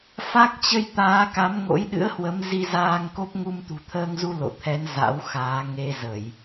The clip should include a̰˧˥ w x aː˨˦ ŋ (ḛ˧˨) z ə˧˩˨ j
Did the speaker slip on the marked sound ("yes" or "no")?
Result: yes